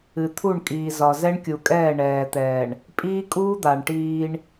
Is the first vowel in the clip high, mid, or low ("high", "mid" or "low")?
high